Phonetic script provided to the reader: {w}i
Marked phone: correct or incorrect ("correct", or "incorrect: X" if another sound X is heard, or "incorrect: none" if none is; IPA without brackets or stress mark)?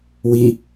correct